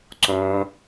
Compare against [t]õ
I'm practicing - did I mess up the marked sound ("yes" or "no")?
yes